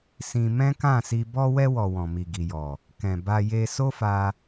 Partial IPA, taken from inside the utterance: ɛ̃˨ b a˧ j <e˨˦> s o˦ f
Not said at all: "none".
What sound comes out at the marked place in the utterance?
e˧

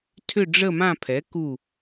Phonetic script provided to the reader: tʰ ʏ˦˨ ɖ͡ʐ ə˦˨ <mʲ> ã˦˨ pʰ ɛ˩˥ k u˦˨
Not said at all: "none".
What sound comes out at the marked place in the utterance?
m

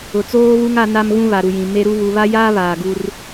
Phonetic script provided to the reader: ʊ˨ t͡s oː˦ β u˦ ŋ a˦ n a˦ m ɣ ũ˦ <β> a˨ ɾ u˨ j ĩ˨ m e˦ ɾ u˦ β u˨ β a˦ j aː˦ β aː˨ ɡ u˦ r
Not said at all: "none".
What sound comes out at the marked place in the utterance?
β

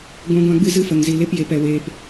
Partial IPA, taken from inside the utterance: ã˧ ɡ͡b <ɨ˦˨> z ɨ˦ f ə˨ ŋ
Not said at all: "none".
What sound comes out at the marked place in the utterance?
ɨ˦˨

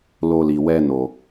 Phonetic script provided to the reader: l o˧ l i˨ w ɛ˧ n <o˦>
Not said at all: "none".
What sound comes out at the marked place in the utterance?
o˨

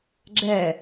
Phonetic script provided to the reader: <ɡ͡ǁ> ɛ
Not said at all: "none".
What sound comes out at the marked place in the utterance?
ɡ͡ǁ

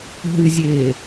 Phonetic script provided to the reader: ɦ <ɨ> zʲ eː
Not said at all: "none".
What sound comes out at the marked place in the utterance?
ɨ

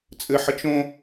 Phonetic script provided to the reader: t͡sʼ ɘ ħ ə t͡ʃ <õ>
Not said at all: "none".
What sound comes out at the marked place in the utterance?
õ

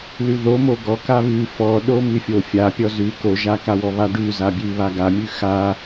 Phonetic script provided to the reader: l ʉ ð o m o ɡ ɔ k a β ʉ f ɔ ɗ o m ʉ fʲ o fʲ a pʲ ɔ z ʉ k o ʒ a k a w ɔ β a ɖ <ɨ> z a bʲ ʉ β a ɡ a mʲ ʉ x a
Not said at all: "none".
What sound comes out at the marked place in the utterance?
ʉ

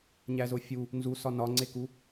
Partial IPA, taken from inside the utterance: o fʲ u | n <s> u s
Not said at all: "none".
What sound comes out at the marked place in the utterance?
z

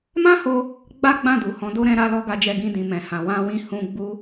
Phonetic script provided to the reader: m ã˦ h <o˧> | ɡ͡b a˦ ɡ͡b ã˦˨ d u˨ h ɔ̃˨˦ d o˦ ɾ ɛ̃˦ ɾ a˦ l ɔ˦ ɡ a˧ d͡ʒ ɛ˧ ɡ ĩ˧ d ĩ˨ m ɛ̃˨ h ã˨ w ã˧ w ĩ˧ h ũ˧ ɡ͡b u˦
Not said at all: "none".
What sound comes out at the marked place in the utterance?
o˧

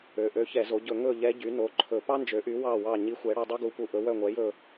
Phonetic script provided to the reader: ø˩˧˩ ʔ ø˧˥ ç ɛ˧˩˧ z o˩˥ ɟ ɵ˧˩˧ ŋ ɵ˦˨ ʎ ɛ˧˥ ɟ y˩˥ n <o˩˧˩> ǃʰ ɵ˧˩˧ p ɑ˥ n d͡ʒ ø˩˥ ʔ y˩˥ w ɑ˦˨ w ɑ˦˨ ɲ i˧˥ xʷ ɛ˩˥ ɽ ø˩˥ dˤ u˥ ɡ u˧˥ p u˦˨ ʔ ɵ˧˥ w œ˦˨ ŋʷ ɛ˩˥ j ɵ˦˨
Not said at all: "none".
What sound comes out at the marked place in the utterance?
o˩˧˩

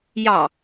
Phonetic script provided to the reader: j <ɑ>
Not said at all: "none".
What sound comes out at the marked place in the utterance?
ɑ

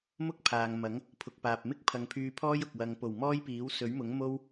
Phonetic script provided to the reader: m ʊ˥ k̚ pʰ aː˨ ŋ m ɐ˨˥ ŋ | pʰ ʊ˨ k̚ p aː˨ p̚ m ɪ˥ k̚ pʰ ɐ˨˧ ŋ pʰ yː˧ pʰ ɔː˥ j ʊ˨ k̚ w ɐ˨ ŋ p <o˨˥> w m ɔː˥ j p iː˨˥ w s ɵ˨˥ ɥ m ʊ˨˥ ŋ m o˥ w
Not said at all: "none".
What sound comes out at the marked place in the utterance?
o˨˩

